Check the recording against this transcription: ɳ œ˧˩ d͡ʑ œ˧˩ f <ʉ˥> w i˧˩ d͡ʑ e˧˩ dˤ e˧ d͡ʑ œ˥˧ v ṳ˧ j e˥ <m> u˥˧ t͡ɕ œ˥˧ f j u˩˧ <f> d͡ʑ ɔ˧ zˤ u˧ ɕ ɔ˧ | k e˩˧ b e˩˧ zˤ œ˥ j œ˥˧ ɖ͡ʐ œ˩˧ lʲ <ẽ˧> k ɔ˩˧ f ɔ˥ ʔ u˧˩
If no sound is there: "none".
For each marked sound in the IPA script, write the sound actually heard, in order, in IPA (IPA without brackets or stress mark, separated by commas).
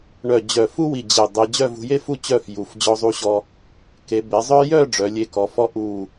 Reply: u˥, f, f, e˧